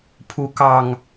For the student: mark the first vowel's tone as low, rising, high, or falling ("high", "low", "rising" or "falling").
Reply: rising